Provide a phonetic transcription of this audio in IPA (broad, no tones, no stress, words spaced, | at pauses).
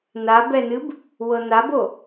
nabɛnɨb | wɤnabo